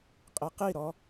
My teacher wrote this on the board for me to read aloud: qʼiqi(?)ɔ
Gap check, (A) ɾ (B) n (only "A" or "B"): A